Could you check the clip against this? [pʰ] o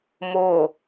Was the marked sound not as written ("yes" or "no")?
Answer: yes